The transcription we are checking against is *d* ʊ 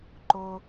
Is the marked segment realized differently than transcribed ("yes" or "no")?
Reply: yes